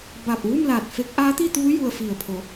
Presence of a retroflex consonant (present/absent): absent